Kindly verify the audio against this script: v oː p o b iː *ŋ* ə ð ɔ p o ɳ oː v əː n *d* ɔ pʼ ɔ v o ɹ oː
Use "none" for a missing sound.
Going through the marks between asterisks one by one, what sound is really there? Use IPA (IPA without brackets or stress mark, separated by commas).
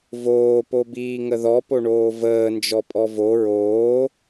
ŋ, d͡ʒ